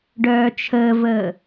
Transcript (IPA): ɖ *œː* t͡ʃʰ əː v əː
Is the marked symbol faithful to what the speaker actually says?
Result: yes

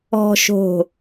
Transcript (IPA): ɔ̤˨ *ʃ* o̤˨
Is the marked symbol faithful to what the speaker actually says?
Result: yes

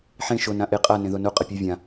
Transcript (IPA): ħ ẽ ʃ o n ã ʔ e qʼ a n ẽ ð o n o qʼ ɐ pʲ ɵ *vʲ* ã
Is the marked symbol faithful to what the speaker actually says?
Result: yes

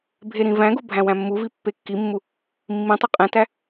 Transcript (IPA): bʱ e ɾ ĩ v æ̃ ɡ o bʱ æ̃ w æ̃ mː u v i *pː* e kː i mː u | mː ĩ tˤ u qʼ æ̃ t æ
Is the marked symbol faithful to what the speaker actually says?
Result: yes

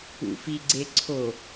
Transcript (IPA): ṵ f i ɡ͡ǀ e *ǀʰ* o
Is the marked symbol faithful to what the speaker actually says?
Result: yes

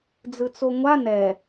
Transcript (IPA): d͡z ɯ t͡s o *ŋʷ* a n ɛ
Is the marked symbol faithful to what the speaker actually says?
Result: yes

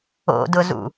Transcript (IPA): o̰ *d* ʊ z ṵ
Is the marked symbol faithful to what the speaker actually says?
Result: yes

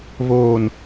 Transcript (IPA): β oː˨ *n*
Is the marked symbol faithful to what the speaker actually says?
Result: yes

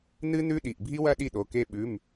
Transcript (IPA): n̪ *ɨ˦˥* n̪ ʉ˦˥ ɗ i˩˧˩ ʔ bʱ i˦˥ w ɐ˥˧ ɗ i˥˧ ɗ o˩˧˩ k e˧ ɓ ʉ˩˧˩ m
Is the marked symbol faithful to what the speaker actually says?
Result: yes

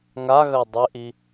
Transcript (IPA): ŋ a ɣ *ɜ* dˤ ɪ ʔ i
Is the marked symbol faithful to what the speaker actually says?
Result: yes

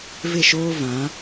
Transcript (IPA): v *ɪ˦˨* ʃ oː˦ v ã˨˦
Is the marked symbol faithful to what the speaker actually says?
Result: yes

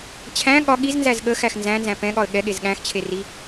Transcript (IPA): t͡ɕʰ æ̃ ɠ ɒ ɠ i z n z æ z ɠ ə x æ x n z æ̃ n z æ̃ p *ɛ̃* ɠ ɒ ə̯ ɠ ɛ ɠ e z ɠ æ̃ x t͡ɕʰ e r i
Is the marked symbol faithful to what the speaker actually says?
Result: yes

